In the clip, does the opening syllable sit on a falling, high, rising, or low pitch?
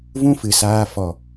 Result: high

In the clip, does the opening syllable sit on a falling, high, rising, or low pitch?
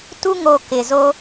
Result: high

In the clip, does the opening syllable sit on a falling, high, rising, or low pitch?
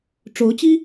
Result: rising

